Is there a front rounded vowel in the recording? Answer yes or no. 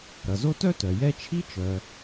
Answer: yes